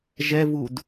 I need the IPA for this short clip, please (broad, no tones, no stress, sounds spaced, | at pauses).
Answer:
ʒ ɛ v u d